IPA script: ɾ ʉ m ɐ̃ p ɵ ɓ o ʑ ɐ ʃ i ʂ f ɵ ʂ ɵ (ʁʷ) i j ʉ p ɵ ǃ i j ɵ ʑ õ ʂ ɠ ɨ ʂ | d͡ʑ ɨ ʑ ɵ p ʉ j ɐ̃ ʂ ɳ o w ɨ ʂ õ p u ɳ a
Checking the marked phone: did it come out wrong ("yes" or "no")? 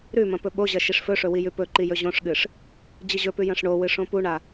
yes